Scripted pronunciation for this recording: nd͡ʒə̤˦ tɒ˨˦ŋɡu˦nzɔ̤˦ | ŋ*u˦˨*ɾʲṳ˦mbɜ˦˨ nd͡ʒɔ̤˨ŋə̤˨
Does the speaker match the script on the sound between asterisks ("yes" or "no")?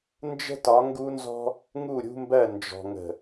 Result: yes